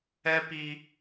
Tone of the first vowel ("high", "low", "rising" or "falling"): high